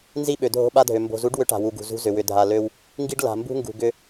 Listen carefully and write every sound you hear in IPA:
n z i˦ ɓ ø˨ dʱ o̤˦ ɓ a˦ dʱ ø˨ m b o̤˨ z u˨˦ ɖ w ʏ˨˦ ʈ a̤˨ w u˨ ɡ ṳ˨ z ṳ˦ z ʏ˨ w ʏ˨ dʱ a˨ l ø˦ w | ŋ ɡ i˦ ɖ l a̤˨ m b ṳ˦ ŋ ɡ ṳ˨ ɡ ʏ˦

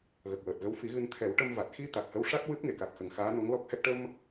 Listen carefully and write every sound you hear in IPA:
ɣ ə˨˩ k̚ w əː˨˩ t̚ ɣ ə˧˥ w f i˨˩˦ ɣ ɨ˧ n t̪ʰ ɛ˨˩˦ w ʈ ə˧ m v a˨˩ t̚ x i˧ t̪ a˨˩ k̚ h ə˧˥ w ʂ a˦˥ t̚ w ɨ˦˥ p̚ ŋ e˨˩˨ k a˨˩ k̚ x ə˨˩ ŋ x aː˧˥ n o˧˥ ŋ l ɔ˦˥ k̚ h ɛ˦˥ k̚ ʈ ə˧ m

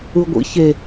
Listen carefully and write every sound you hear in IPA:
ɯ ɡʷ ḭ ç e

